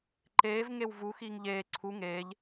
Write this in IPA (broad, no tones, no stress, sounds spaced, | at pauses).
ǃ eː v ŋ e w v u x iː ŋ ʎ eː ǀʰ u ŋ eː ʎ